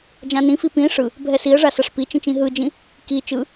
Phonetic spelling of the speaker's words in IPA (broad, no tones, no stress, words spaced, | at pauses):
d͡ʒãnĩfi pĩ ʂɯ | bʱɛsiə̯ʐa saʂpit͡ʃĩt͡ʃ ĩɦɯd͡ʒĩ | ki t͡ʃɯ